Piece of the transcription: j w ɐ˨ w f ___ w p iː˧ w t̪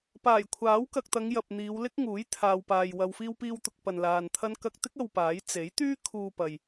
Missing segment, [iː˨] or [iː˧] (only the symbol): iː˧